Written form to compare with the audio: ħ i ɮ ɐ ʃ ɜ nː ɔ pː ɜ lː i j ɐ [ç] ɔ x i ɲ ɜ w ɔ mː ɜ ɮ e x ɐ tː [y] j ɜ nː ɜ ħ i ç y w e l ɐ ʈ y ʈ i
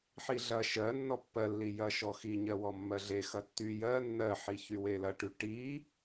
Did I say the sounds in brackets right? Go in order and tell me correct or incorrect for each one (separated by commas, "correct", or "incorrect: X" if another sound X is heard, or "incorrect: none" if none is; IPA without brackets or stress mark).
incorrect: ʃ, correct